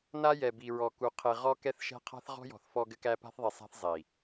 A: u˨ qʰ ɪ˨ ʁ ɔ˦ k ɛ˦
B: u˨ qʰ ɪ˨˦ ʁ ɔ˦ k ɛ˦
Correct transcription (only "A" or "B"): A